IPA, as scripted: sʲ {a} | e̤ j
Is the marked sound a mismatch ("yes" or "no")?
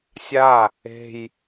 no